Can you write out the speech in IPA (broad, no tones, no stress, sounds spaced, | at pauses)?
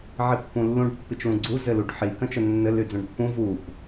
ʕ i pː ũ lː ũ ɖ pː i t͡ʃ l ũ ɡ͡ǀ u z ɘ l u ɖ ħ i k ə̃ t͡ʃ ə nː ɘ l y d͡z ũ ɖ pː ũ v u p